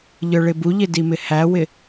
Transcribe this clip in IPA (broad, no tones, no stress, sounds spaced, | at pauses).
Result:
ʎ ə˞ ɭ ɪ b u ʎ ɪ d i m ɪ h æ w ɪ